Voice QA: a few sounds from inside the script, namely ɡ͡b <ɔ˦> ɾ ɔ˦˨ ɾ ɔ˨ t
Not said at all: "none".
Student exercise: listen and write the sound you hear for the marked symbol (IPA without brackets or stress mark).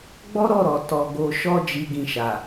ɔ˦